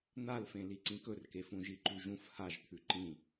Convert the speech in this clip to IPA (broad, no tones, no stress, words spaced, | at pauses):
n̪alfẽ liǀĩkɵrke fũʒiǃʉʒũf haʒt̪ʰʉ ǃĩ